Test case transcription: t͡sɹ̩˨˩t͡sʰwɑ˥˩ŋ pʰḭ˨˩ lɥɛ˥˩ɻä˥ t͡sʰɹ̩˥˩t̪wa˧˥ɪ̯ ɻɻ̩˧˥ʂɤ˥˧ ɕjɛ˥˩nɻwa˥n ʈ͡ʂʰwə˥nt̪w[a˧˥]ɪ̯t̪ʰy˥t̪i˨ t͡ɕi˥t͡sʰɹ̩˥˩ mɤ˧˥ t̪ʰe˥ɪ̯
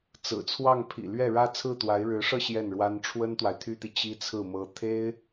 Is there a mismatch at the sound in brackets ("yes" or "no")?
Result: yes